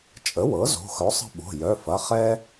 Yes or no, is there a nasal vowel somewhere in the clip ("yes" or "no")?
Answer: no